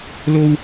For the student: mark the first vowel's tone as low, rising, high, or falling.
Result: high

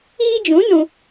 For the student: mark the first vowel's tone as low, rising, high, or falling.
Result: high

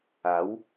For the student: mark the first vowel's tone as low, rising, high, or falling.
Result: rising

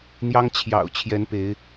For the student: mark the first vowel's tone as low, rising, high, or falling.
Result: high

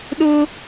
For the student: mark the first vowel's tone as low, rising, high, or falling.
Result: high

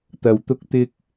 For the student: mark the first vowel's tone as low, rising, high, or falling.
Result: low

